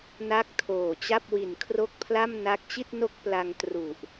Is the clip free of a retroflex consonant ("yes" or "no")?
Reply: yes